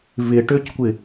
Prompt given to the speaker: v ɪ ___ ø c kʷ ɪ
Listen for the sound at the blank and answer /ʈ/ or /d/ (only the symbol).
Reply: ʈ